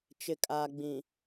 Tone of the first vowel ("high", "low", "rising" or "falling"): low